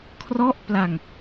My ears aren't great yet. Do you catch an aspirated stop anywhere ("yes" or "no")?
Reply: yes